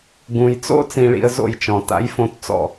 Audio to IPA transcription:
ɡũ˩jt͡so̰˥ t͡sĩ˧ɭḭ˧ə̯zo̰˥˩jt͡ʃɔ̃˩ ta̰˩˥jfõ˧t t͡sɔ̰˥˩

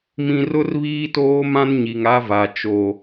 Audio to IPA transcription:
mĩ˨rʊ˦r βiː˦toː˦mã˦n ɲi˨ŋa˦va˨ t͡ʃo˨

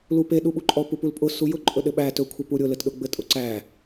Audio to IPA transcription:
lupe ɗuɓuǃʼɔ pupulpʼʊ sujʊ ǃʼɵɗɘɓæ tɵ kʷʰɘpuɾʲʊ lɘtɗʊɡ͡bɘtʼʊ ǀæ

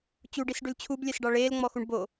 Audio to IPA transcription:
t͡ɕuɖisɖʉl t͡ɕʰublʲɛsɖɑ ɭeːlŋ͡mɔxuɳ bo

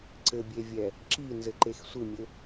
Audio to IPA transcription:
ǀɘbʲevʲɛ | ǁinzɘǃex sʷɨmʲɘ

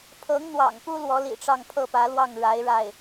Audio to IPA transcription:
pʰɤ˧˥ŋ n̪wɑ̰˨˩ŋpu˥ lwɔ˧˥lḭ˨˩ʈ͡ʂɑ˥˧ŋ pʰɤ˥˩pä˧˥lwɑ˥˩ŋ ɻa˧˥ɪ̯ɻa˥˩ɪ̯

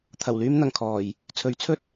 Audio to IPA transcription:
t̪ʰɐ˨˩wlyː˧m n̪ɐ˨˩ŋ kʰɔː˨˩j | t͡sʰɵ˨˥ɥt͡sʰɵ˥t̚

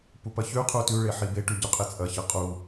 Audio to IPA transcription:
pupɐçʉ qʰutʉ ɭeħibe ʈʉɟuqʼet͡sʼɐ çɐqʼu

